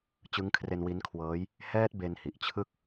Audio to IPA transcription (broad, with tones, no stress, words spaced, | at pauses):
t͡ɕɯ˦˥ŋkʰre˧nwi˦˥nkʰwɤː˦˥j | hɛː˦˥t̚ be˧nhi˨˩ʔt͡ɕʰɯ˥˩k̚